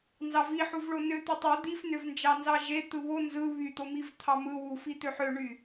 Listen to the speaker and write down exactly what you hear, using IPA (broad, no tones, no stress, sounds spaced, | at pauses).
n z ɑ v i ħ u v ɭ o n ø t̪ u tˤ u d̪ i f n ø v n d͡ʒ ɑ n z ɑ ʒ e t̪ ɯ β o n z ɯ β y t̪ o m i v t̪ʰ ɑ m ɯ w u f i t̪ ø ħ ø ɳ y